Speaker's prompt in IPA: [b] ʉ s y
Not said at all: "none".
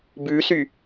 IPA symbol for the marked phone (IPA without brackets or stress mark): b